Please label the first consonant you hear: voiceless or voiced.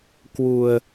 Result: voiceless